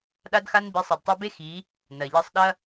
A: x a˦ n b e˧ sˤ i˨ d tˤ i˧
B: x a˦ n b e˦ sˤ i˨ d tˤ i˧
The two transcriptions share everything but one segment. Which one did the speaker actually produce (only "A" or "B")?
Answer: A